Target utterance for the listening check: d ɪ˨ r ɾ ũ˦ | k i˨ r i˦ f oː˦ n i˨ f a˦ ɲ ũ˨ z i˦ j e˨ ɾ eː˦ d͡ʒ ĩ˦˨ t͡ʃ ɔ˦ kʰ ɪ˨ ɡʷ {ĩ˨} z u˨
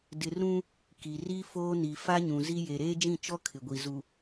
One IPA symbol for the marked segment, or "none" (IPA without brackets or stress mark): i˨